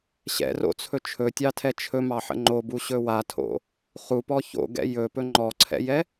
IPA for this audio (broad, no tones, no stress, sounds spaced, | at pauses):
ɕ ɛ̰ r o̰ t͡sʰ ɵ t͡ʃʰ ɵ tʲ ɑ tʰ ɛ t͡ʃʰ ɵ m ɑ ħ ə̰ ŋ͡ǃ o b u ɕ ɵ w a tʰ o̰ | χ u p ɔ ç o̰ ɡ ɛ̰ j ɵ p ɵ ŋ͡ǃ ɔ ǀʰ ɛ̰ j ɛ